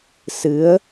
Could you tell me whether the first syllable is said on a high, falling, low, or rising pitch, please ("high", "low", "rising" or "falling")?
rising